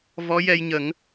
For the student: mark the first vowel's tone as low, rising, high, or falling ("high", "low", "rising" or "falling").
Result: rising